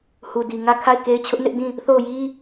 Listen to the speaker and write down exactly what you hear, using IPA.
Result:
h u˨ d i˨ ŋ ä˦˨ kʰ a˦˨ ɪ̯ k e˦ ɪ̯ t͡ɕʰ ʊ˦ ʔ n ɪ˦ ʔ d ĩ˦˨ | θ o˦˨ ʊ̯ j i˦

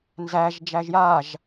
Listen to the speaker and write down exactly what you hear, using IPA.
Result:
n z æ ʒ d͡ʒ æ ʒ j a ʒ

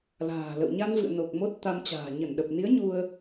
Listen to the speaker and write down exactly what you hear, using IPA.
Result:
l a̤ː˨˩ l ə̰˧˨ w ɲ a˧ n v ɨ̰˧˨ ə̯ n o˨˩ k̚ m o˦˥ t̚ t̪ a˧ m t͡ɕ a̤ː˨˩ ɲ ə˧˩ n ɗ ə˨˩ p̚ n i˨˦ ə̯ ɲ u˧ ə̯

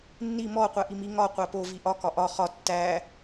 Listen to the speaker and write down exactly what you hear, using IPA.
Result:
nː i m ɔ qʷ æ ʔ i m i ŋ ɒ qʷ æ p o v i ʔ ɒ k ɒ ʔ ɒ χ ɒ tː æ

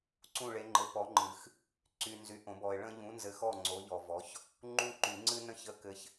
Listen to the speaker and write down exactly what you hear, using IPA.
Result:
ǀ ũ˥˨ ɭ e˨˥ ŋ͡ǃ ɘ˨˥ p ɔ˨˥ ŋ͡ǃ ɨ˨˩˦ x | ǀ y˨ n z y˨ ʔ õ˨˩˦ b ɔ˨ ɪ̯ ɭ ə̃˦ ʎ ũ˨˥ n z ɘ˨˥ x ɔ˥˨ ŋ͡ǀ o˨˥ ʎ ɔ˨ v ɔ˨˥ ç | ŋ͡ǃ ũ˦ ǃ y˨˩˦ ŋ͡ǀ ɨ˦ n ə̃˥˨ ç ə˥˨ k ɘ˦ ç

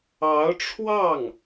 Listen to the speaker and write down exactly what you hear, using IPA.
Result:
ɑ˧˥ ʊ̯ ʈ͡ʂʰ w ɑ˥˩ ŋ

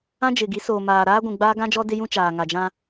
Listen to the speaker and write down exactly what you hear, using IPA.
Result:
ã˦ d͡ʒ ɪ˨ ɡ i˨˦ s oː˨ m aː˨ ɾ aː˦ ɡʷ ũ˨ ɡ͡b aː˦ ɡ ã˦ d͡ʒ ɔ˦ d ɪ˦ j ũ˦ t͡ʃ aː˨ ŋ a˨ d͡ʒ ã˦

